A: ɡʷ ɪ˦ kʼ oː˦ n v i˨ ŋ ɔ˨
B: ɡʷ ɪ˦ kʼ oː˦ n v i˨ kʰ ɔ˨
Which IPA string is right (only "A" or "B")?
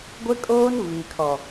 B